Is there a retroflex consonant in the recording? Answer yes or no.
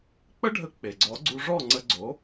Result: yes